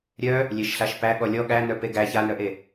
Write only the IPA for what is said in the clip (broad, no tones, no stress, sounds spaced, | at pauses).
ɾʲ œ | lʲ e ʃ ɬ a ʃ p æ ɠ ɔ lʲ ɔ ɠ æ n œ p e ɡ æ ç a n œ ʔ e